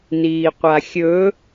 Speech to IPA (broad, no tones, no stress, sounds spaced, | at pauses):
n iː qʷ a xʲ ɵ